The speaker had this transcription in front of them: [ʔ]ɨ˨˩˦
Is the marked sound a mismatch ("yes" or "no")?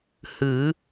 yes